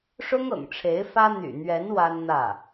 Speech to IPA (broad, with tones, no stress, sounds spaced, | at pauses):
ʂ ʊ˥ ŋ ɤ̰˨˩ ŋ ʈ͡ʂʰ e˧˥ ɪ̯ f ä˥ n̪ y̰˨˩ n̪ ɥ ɛ˧˥ n w a˥ n n̪ ä˥˩